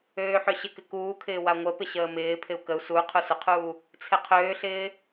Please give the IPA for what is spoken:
øː ħ ø ɕ ɪ k ɪ k uː kʰ ɪː w a ŋʷ ə p ɪ ɕ əː m ɪː pʰ ɪ u̯ k ə u̯ s u qʰ u s ʊ qʰ uː | t͡sʰ ɪ qʰ øː ɬ ɪː

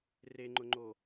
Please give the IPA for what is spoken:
r e ŋ͡ǃ ʊ ŋ͡ǃ o

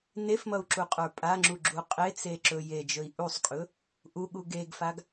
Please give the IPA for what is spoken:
n e f m ʌ u̯ ǁ u qʼ ə˞ pʼ a ŋ͡ǁ u ɡ͡ǁ u qʼ e t͡s e ǁ ɵ j e d͡ʒ ɵ i̯ ʔ u sˤ kʼ ɵ | ʔ u ɠ u ɡ e ɡ f a ɡ

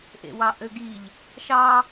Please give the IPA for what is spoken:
ʔ ḛ w ɑ ʔ ø ɡ i ʎ | ʃ ɑ

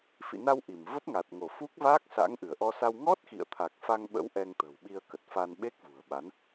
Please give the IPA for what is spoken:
f ḭ˧˨ n a˧ w ʔ i˧˩ m v ə˦˥ p̚ ŋ a˨˩ t̚ ŋ o˧˩ f u˦˥ k̚ v aː˦˥ k̚ s a̰˧˥ ŋ ʔ ɨ˧˩ ə̯ ʔ ɔ˧ s a˧ w ŋ ɔ˦˥ t̚ x ḭ˧˨ ə̯ t̪ʰ a˨˩ k̚ f a˧ ŋ ɓ ə̰˧˥ w ʔ ɛ˧ ŋ t̪ ə̤˨˩ w ɓ i˧ ə̯ k ə˨˩ t̚ f a˧ n ɓ e˦˥ k̚ v ṳ˨˩ ə̯ ɓ a˨˦ n

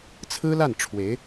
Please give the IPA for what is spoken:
t͡sʰ ɹ̩˥ l a˥˩ n ʈ͡ʂʰ w e˧˥ ɪ̯

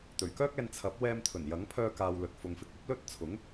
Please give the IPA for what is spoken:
t̪ ɵ˨˩ ɥ k œː˥ k̚ ɛː˧ n t͡sʰ ɐ˨˥ p̚ w ɛː˧ m t̪ʰ ɵ˨˩ n j ɐ˨˥ ŋ pʰ œː˧ k aː˨ w l ɵ˨ t̚ f ʊ˨ ŋ f ɪ˧ k̚ ɐ˨˥ p̚ l ɵ˧ t̚ t͡sʰ ʊ˨˥ ŋ

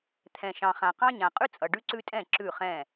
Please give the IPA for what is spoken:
t̪ʰ ɛ̃˨ ʃ ɑ̃˨ χ ã˨ q ɑ̃˦ ɲ ã˨ qʼ ʉ˦ t͡sʼ ʌ˨ ɖ ʉ˦ ǀ ʉ˦ tʼ ɛ̃˦˨ ǁ ʉ˦˨ χ ɛ̃˦˨

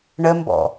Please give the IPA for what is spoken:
ɳ ə m b ɔ̰

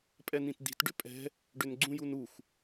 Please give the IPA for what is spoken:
pʼ ɛ n ĩ t d̪ i̤ t ɖ ʏ pʼ ɛ̤ | ɖ ʏ n ɡ͡ǀ ũ j u n u x

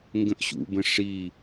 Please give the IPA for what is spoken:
ŋ ɡ ə̃ ʔ ɕ ṵ b ə̃ ʂ i

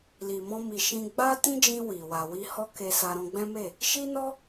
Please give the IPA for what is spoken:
l i˨ m ɔ̃˧ m i˨ ʃ ĩ˧ ɡ͡b a˦ t ĩ˦ d͡ʒ ĩ˧ w i˨ w a˨ w i˧ h ɔ˦ k e˧ s a˧ ɾ ɔ̃˧ ɡ͡b ɛ̃˦ m e˦˨ | ʃ i˦ n ɔ˦

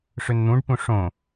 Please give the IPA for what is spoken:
ʂ ø n n̪ ũ ɖ p ũ ʂ õ

